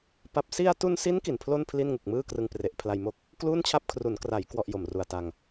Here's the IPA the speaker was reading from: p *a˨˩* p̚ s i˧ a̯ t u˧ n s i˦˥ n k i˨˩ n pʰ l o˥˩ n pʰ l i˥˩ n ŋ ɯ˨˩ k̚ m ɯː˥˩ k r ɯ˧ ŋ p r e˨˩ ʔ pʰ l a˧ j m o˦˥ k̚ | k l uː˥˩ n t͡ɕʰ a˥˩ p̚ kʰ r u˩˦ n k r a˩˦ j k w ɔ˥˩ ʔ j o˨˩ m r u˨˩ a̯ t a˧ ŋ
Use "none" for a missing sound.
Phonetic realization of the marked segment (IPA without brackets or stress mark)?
a˨˩